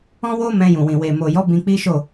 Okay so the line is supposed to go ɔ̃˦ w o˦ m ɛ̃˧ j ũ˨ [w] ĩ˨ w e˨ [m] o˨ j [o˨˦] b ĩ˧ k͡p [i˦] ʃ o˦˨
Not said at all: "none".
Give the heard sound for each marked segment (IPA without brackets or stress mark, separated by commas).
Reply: w, m, ɔ˨˦, i˦